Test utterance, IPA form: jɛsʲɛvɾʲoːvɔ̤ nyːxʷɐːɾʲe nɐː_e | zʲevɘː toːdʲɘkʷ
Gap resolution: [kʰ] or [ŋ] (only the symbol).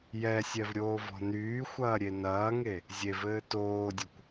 ŋ